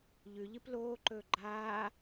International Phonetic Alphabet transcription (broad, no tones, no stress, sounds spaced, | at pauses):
ʎ ʉ ʎ ɨ p l oː ǃ ɵː ɡ͡ǃ aː